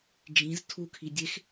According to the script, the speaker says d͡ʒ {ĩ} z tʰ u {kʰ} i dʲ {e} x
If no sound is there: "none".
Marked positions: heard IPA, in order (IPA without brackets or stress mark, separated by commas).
ĩ, kʰ, e